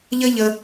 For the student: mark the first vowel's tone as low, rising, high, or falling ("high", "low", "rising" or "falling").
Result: high